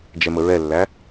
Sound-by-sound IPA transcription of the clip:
d͡ʒ ɛ m ə ɹ ɛ lː æ

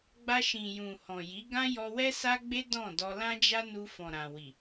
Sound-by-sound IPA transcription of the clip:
ɡ͡b a˧ ʃ ĩ˨ j ũ˨ h ɔ̃˨ j i˨˦ ɡ ã˦ j ɔ˧ w ɛ˦ s a˦ ɡ͡b e˦ d ɔ̃˦˨ d ɔ˧ l ã˦ d͡ʒ a˦ n u˧ f ɔ̃˨ ɾ ã˨ w i˨

